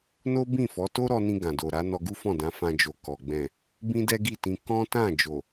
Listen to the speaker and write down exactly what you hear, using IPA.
n o˦ b ĩ˦˨ f ɔ˨˦ t o˦ ɾ ɔ˧ n ĩ˧ ɡ ã˨ d o˨ ɾ a˨˦ n ɔ˧ ɡ u˦ f ɔ̃˦˨ d ã˨˦ f ã˧ d͡ʒ o˨ k ɔ˨ ɡ͡b ɛ̃˨ | b ĩ˦ d ɛ˦ ɡ i˦˨ t ĩ˧ k ɔ̃˦ t ã˦˨ d͡ʒ o˨

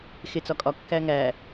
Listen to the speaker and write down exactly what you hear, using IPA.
x e t͡s ɒ kʼ ɒ kː æ ŋ æ

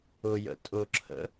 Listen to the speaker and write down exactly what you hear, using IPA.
ʊ j ə̰ tʼ ʊ ǁʰ ə̰

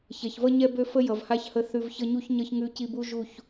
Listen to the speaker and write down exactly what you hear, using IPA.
ç ɛ˨ ç v ʌ˦ ɲ ɛ˧ b ø˧ f ə˧ j ʌ˨ v h a˦ ç h ə˧ θ ʉ˨ v ç ʌ˧ ɲ u˧ ç ɲ ʌ˧ ç ŋ ʉ˧ c i˧ b u˦ ʒ u˦˨ ç

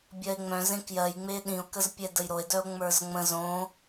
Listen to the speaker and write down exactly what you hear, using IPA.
bʲ ɜ e̯ ŋ͡m œ̃ z ẽ k j ɜ j ŋ͡m e ɗ ĩ o̯ k ə z pʲ ɛ d ə j ɾ o e̯ d œ o̯ ŋ͡m ə˞ z ŋ͡m ə̃ z õ

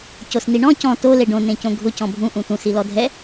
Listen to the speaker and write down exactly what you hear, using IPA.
c o s n i ɳ ɔ̃ c ɔ̃ t o l e ɖ õ n ẽ c õ ɡʱ ʊ c ɔ̃ bʱ ũ ʔ ũ t ũ s i l ɔ dʱ ɛ

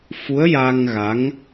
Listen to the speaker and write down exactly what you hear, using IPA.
f u˧˥ ə̯ j aː˧ ŋ ɣ a˧˥ ŋ

